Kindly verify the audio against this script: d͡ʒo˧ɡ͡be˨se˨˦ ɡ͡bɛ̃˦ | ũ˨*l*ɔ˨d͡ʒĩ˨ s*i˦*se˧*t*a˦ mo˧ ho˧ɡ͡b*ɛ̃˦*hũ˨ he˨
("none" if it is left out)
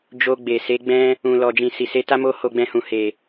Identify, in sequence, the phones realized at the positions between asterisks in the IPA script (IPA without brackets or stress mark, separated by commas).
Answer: l, i˨, t, ɛ̃˧